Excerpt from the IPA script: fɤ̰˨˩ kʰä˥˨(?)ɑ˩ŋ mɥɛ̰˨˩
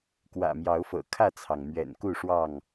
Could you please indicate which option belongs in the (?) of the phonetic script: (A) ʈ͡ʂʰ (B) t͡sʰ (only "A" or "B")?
B